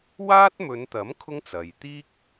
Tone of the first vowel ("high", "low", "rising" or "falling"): high